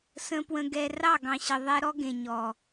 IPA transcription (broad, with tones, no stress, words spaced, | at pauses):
sə̃˧pwə̃˧ ɡɛ˧rɑ˦˨ ɡɑ̃˨ɕə˨ðˤɛ˧ɾɔ˦ ɡẽ˨ɲɔ˨